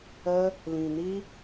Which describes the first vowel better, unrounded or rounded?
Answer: unrounded